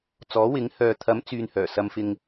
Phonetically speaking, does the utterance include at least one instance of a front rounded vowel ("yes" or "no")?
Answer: yes